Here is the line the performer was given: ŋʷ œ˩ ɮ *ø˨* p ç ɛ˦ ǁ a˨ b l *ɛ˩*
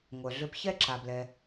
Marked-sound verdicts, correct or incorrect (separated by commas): correct, incorrect